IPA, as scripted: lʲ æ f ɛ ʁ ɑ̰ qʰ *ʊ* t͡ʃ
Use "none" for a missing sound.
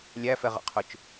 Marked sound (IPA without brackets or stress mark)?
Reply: ʊ